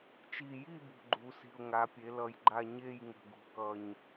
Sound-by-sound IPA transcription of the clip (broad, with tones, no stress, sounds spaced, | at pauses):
t͡ʃ i˨˩ j i˦˨ b ṳ˨˩ ɡ͡ǃ u˩˧ s i̤˨˩ ʊ̯ ŋ a˩˧ pʲ e˩˧ l ʌ˨˩ j ɡ͡ǃ a˦˨ ɲ e˦˨ j ŋ ə̤˨˩ ɡ ṳ˨˩ k ʌ˨˩ ɲ